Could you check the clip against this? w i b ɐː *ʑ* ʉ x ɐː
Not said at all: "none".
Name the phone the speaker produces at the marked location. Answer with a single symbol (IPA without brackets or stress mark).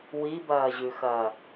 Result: ʑ